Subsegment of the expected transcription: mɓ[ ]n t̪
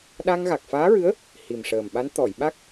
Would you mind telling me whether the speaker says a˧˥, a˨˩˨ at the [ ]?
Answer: a˧˥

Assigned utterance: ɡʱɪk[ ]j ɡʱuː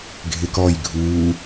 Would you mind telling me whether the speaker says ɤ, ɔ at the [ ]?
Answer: ɔ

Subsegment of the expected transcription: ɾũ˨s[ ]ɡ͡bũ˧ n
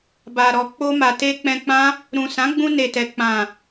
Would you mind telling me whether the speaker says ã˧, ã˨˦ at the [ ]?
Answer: ã˨˦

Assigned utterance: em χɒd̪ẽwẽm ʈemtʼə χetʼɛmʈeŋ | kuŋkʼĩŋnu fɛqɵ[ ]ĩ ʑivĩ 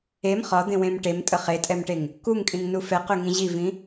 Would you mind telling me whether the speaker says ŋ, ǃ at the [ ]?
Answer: ŋ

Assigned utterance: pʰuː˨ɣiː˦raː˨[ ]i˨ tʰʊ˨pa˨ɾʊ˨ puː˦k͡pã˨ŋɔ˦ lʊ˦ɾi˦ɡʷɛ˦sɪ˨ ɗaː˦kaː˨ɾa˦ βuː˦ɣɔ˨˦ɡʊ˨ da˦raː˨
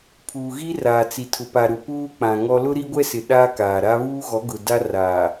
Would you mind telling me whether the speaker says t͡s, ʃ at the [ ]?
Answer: t͡s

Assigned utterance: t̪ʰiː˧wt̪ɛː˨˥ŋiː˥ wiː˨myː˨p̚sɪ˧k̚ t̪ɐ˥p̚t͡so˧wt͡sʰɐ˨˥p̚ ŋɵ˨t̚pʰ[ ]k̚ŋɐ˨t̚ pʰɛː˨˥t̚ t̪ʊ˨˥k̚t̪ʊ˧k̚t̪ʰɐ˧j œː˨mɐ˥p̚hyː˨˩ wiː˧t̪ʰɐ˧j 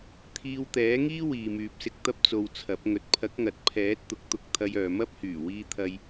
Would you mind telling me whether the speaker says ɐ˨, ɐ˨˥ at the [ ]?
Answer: ɐ˨˥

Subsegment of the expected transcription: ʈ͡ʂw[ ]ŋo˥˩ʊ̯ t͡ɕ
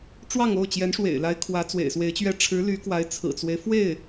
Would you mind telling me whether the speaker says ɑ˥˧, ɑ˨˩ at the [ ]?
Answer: ɑ˥˧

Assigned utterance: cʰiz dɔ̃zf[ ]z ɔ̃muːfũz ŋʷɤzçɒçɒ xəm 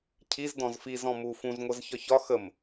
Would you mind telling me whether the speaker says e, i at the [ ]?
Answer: i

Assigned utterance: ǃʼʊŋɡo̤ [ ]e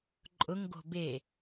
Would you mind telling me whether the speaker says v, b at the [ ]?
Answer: b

